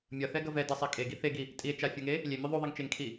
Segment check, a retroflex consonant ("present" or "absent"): absent